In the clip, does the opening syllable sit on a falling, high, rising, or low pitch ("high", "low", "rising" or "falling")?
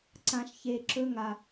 low